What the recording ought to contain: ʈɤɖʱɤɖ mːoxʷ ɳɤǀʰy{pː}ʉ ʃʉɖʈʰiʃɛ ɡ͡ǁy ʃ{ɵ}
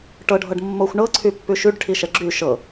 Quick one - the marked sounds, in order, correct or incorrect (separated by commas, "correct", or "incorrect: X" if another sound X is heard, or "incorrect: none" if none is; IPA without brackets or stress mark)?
correct, incorrect: ɤ